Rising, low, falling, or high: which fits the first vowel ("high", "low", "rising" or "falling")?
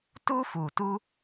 high